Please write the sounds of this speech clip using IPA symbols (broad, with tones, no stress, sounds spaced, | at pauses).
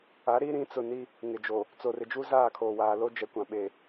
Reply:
a˨˦ ɾ i˦ ɾ ĩ˨˦ t͡s ʊ˨ n i˦ | ŋ ɪ˨ d͡ʒ oː˨ | t͡s o˨ r ɪ˨ d͡ʒ u˦ z aː˦˨ kʰ oː˨ w aː˨ l o˦ d͡ʒ ɛ˨ kʷ ã˨ ɓ eː˨